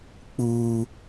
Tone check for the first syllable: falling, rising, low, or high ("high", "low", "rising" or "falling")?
high